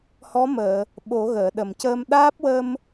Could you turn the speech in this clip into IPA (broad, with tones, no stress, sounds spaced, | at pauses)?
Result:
h ɔ˧˥ m əː˨˩˨ | ɓ o˨˩˦ ɣ əː˨˩˨ ɗ ə˨˩˨ m c əː˧ m ɗ aː˦˥ p̚ w ə˧ m